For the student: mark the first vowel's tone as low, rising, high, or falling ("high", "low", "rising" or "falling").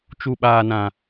low